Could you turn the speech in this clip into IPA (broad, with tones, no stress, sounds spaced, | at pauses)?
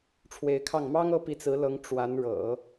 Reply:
ʈ͡ʂʰ w e˧˥ ɪ̯ kʰ ɑ˥˩ ŋ m ɑ˥ ŋ ɤ˧˥ p i˧˥ t͡s ɹ̩˧˥ l ɤ˧˥ ŋ ʈ͡ʂ w a˧˥ n ɻ ɤ̰˨˩˦